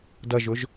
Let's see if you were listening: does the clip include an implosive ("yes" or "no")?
no